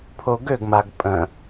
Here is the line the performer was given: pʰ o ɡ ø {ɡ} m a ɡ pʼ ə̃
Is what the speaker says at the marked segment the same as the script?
yes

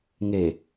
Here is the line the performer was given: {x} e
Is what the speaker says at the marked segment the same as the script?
no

